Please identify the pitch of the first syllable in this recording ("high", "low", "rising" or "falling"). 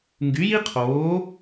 rising